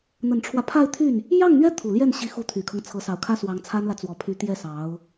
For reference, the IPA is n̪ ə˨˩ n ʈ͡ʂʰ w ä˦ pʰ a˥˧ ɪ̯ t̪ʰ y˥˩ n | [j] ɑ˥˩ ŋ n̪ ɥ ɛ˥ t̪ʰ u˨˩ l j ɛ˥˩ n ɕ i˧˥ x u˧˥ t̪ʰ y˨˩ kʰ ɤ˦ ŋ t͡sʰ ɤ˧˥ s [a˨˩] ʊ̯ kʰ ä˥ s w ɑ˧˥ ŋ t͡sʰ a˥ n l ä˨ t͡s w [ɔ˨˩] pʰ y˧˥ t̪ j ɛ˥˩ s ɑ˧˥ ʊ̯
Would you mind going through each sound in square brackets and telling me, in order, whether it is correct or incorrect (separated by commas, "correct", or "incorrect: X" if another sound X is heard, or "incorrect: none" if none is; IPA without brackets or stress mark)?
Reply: correct, incorrect: ɑ˨˩, correct